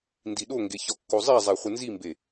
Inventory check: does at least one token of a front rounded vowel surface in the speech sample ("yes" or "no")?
no